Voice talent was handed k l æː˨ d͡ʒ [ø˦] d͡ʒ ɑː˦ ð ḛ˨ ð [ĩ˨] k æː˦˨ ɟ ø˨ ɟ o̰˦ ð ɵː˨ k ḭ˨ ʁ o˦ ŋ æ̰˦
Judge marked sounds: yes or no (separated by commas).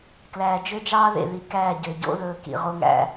yes, no